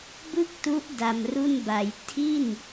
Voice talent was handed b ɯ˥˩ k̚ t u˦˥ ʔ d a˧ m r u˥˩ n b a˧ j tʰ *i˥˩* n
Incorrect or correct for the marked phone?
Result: correct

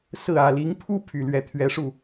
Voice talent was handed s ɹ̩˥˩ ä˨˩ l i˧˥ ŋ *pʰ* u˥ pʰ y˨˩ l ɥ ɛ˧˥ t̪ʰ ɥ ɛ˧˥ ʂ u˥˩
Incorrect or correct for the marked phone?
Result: correct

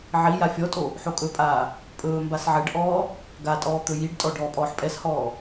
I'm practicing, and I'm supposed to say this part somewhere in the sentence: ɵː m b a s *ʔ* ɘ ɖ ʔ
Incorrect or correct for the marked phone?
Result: incorrect: ʕ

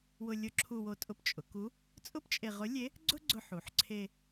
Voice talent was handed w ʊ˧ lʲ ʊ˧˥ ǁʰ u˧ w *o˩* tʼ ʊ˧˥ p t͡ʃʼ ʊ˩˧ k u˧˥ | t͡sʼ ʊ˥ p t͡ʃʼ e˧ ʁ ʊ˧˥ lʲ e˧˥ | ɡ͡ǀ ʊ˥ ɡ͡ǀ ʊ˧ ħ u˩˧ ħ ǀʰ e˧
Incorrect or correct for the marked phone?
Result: incorrect: o˧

